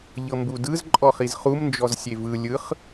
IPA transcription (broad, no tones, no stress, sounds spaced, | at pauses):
ʎ ɤ m b u d ɯ z ǃʼ ɔ χ i z χ u m n d͡ʒ ɔ z sʲ e v ɯ lʲ ɯ χ